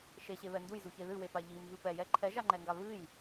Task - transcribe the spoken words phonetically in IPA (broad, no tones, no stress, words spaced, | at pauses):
ʃeɕeβɛ ndujzuçe ðɨwepa ʎimvɨ pɛjɛ ǃʰɛʒaŋ͡ǃɛŋɡa βɨj